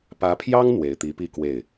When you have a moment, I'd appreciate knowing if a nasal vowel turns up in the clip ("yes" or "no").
no